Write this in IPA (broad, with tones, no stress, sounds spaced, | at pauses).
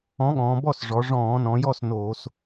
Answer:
ɔ̃˨˥ ɠ ɔ̃ː˩˧ b ɔ˥˩ s ʐ ɔ˩˧ ʐ ɔ̃ː˧˩˧ n ɔ̃˩˧ j ɔ˥˩ s n oː˧˩˧ s